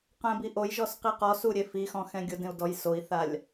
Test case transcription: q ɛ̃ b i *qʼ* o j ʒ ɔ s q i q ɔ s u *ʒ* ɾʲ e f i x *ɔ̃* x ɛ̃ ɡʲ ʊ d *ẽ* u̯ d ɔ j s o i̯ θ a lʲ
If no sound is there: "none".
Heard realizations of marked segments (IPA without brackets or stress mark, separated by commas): ʔ, none, ɔ̃, ẽ